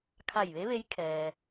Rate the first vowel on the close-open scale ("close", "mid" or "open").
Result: open